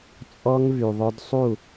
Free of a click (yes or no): yes